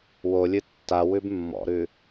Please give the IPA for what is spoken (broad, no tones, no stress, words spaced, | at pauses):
wolʲɨ tːa wʉbmːɔ̰ɾʉ